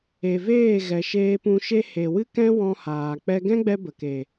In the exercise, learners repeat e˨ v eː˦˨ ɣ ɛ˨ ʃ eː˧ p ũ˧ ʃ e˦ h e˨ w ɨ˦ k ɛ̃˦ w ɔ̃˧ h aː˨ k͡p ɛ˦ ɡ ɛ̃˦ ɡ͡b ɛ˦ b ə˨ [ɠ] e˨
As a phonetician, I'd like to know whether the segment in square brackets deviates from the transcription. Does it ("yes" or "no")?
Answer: yes